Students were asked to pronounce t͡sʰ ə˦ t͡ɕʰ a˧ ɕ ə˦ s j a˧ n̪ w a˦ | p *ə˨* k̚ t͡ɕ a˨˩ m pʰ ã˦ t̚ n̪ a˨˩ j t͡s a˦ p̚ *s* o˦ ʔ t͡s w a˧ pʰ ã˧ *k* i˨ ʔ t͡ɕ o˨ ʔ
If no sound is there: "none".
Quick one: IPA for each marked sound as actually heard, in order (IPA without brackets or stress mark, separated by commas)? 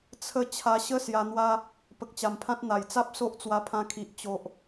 ə˨, s, kʰ